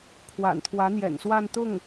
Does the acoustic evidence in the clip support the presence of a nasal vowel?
no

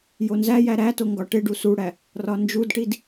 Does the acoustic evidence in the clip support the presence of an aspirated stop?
no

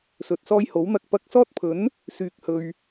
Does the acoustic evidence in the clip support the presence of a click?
no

